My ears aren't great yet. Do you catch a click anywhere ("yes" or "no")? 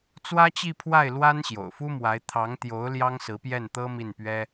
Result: no